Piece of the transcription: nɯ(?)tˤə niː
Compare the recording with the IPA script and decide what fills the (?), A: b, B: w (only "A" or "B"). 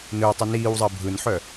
B